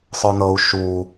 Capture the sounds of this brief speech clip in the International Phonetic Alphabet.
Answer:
sˤ ə˞ n ɤ u̯ ʃ u

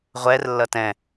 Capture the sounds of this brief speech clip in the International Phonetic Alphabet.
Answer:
ʁʷ ɛ r lː ʌ t ɛ̃

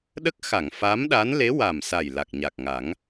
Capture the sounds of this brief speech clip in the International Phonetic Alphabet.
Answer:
ɗ ə˦˥ k̚ x a˨˩˨ ŋ f a˧˥ m ɗ a˧˥ n l e˧˥ w a˨˩ m s a˨˩ j l a˨˩ k̚ ɲ a˨˩ k̚ ŋ a˨˩˦ ŋ

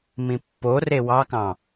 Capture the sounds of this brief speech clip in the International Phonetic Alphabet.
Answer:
m ĩ pː o r e w ɑ k ɑ̃

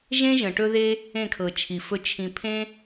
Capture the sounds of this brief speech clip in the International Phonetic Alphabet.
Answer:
ʒ ẽ˦ ʒ ə̃˨ ʈ ɵ˦ ð e˦ | ẽ˦˨ kʰ ɤ˨ t͡ʃʰ i˨ f ɵ˧ t͡ʃʰ ĩ˨ pʰ ẽ˦

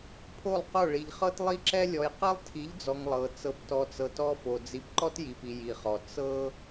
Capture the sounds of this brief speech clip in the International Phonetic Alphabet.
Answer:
pʰ o˦˨ lˠ q o˦˨ ɭ i˨ ʎ χ ɤ˦ t lˠ i˦ ǁ ɛ˦ lʲ ɔ˨ j q ɛ˦ lˠ tʰ i˨˦ ʎ d͡z ɔ˨ ŋ lˠ ɤ˨ t͡s ɤ˨ p t ɔ˨ t͡s ɤ˨ t ɔ˦ f o˨ d͡z i˨ p ǃ ɔ˦ t j i˨ p i˨ j i˨ χ ɔ˨ t͡s ɤ˦

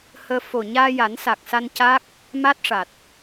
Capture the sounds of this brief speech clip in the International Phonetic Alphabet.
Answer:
h əː˧ f o˨˩ ɲ aː˧ j a˨˩˦ n s a˨˩ k̚ s a˧ n c a˦˥ k̚ | m a˦˥ t̚ ʂ a˨˩ t̚

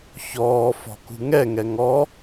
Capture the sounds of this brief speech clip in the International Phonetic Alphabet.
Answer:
ç ɔː f ɔ̤ k ṳ ŋ ɛ ŋ ɛ ŋ ɔ

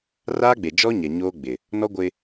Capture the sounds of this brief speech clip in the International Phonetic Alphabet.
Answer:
r aː˦ ɡ͡b e˨ d͡ʒ ɔ˦ ɲ ɛ˨ ɲ oː˦ ɡ͡b ɪ˨ | n ɔ˦ ɡʷ ɪ˦

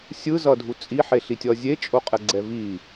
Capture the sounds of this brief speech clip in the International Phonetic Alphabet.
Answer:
sʲ ɯ z ʌ dʱ u t͡sʼ i ħ e ɬ i tʲ ʌ zʲ e t͡ʃʼ o qʼ ɛ ɡ͡ǀ ɛ v i

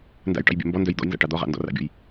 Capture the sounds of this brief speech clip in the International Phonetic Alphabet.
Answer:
n d a̰ j ʈ ɑ̰ j bʲ ɛ̰ m b ɔ n d œ j d̪ ɔ̰ j n z a̰ ʈ ɑ d̪ ɔ ʁ ɑ̰ n d ɔ̰ r ɑ̰ bʲ ɔ̰ j

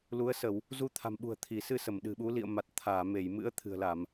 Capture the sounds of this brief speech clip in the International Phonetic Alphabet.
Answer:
l u˨˦ ə̯ s ə˧˩˨ w | z u˧ t̪ʰ a̤˨˩ m ɓ ṳ˨˩ ə̯ t̪ʰ i˧˩ s ɨ˧ s ə˧˩ m ɗ ɨ̤˨˩ ɓ u˨˦ l ḭ˧˨ ə̯ m a˨˩ t̚ t̪ʰ aː˧˩ m e˧˩ j m ɨ̰˧˥ ə̯ t̪ʰ ɨ̤˨˩ ə̯ l a˧˩˨ m

